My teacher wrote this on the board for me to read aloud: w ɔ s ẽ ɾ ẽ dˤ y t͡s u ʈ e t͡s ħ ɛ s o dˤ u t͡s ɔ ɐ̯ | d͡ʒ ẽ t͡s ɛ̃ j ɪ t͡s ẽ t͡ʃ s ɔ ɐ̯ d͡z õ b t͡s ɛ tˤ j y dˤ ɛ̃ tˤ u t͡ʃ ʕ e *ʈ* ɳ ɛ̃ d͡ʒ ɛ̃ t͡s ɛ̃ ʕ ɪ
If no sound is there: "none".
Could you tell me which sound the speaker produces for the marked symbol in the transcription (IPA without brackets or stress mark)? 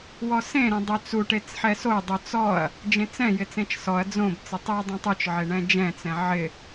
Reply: none